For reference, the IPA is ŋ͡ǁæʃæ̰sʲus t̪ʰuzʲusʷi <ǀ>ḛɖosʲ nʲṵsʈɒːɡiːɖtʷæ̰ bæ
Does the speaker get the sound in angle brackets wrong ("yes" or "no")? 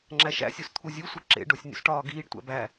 yes